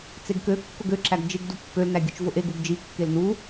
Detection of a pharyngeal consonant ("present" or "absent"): absent